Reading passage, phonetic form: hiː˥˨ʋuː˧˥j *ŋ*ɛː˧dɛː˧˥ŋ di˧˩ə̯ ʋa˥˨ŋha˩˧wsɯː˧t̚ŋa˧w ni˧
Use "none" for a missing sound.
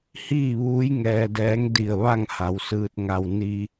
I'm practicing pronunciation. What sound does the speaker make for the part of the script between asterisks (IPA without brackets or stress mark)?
ŋ